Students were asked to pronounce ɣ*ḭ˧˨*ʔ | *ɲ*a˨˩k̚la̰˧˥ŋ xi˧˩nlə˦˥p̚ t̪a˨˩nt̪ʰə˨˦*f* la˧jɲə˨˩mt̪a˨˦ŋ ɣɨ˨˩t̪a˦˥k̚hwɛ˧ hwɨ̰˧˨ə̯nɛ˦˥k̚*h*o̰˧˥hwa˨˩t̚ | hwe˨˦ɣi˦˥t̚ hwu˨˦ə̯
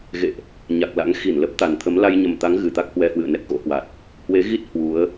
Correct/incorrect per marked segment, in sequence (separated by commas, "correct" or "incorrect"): incorrect, correct, incorrect, incorrect